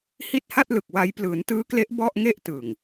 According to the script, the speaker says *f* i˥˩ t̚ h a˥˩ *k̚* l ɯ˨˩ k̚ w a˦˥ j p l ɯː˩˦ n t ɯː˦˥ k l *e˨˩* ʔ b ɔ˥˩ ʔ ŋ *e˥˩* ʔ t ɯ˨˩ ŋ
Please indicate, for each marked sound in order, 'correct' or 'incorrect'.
incorrect: h, incorrect: t̚, incorrect: e˦˥, correct

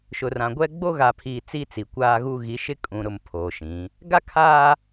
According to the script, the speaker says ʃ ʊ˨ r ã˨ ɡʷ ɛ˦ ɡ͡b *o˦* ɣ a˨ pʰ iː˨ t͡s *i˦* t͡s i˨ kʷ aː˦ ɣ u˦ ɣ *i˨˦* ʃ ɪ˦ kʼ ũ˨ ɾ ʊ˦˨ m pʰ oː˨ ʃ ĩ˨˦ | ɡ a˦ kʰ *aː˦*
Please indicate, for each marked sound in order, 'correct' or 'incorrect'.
correct, correct, correct, correct

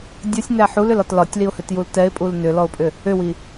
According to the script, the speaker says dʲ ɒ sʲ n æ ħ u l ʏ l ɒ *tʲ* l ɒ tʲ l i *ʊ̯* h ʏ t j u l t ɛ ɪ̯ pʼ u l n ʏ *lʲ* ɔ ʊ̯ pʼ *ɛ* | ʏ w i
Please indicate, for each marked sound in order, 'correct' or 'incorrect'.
incorrect: t, correct, incorrect: l, incorrect: ʏ

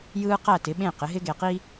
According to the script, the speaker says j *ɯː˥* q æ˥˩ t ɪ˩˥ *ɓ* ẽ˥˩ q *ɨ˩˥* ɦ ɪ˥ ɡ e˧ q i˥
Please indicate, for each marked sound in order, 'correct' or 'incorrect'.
correct, correct, incorrect: ɪ˩˥

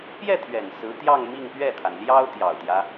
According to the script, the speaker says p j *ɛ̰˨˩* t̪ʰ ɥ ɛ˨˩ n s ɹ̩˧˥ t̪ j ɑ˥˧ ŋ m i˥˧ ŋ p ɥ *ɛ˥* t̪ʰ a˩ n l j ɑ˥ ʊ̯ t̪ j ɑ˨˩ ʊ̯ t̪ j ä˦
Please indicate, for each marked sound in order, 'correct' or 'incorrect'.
incorrect: ɛ˥˩, incorrect: ɛ˥˩

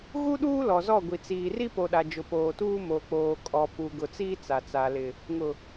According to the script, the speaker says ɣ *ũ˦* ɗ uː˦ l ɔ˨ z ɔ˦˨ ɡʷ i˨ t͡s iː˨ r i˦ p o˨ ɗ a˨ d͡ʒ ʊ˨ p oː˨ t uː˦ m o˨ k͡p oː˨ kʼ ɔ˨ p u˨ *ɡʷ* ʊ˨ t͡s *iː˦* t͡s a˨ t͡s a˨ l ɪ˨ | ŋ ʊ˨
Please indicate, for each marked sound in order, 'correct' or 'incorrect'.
incorrect: u˦, incorrect: ɡ, correct

